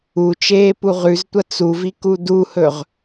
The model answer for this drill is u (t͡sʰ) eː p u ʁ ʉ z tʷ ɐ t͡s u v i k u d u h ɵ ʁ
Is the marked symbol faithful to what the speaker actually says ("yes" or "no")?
no